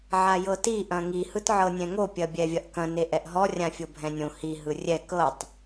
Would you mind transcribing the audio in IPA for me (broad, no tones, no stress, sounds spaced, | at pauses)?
ʕ a j ɤ t i ʔ ɐ̃ ŋ i h ɯ t ʕ ɤ nʲ ɛ̃ ŋ o pʲ ɐ bʲ ɛ vʲ ɐ ʔ k ɐ̃ n e ʔ ɛ ʔ ɦ ɔ rʲ ã fʲ o bʱ ɛ̃ nʲ õ h i ɦ ɯ rʲ ɛ k ɤ tˤ